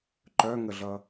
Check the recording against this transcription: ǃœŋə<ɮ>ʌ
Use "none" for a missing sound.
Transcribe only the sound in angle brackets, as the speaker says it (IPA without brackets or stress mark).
ɮ